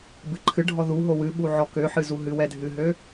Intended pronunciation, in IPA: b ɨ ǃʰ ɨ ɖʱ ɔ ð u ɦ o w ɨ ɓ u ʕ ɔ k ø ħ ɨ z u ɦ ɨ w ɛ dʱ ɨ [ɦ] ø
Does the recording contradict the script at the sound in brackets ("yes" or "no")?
no